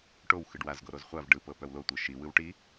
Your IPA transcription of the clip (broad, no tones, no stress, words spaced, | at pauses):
ʈow xɯɖwaz ɡoɾozχʷav ɖɯ pɤpœwlo tʷɤʃi wɯwʈi